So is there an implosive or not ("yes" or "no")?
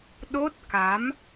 yes